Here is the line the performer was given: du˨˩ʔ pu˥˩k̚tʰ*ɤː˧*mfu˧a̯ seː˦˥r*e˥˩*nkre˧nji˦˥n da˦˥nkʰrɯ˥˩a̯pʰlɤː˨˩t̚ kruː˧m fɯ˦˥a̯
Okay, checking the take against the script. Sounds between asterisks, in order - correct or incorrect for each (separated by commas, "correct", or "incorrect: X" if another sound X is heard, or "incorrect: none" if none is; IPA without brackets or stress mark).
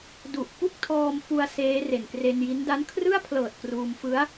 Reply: incorrect: ɔː˧, incorrect: e˨˩